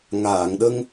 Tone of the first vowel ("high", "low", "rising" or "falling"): low